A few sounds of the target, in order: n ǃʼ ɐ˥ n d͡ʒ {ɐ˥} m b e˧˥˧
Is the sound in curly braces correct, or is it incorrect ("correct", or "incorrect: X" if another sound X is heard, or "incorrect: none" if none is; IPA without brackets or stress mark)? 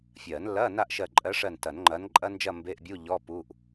incorrect: ɐ˥˧